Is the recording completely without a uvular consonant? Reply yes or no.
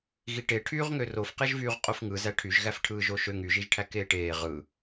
no